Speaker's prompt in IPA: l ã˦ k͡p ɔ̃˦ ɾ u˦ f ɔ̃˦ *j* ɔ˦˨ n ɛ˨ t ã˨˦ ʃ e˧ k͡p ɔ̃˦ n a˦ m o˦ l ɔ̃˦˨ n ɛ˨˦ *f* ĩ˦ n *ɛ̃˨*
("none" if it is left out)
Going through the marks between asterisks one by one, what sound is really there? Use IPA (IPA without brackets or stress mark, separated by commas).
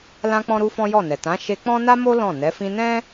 j, f, ɛ̃˦